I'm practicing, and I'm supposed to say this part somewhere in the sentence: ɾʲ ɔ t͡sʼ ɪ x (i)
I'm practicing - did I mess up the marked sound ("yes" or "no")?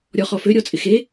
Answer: yes